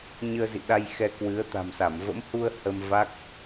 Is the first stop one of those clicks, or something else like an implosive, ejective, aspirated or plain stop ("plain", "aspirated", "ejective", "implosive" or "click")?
implosive